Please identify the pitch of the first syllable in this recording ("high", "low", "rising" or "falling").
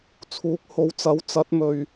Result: rising